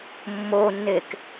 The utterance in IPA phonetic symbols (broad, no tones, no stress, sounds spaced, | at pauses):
mː o nː e k